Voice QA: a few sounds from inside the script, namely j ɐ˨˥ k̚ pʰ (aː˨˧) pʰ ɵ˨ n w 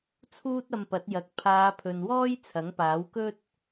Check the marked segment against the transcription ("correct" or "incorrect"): correct